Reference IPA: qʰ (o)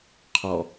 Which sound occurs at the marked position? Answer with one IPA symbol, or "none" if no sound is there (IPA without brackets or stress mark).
ɔ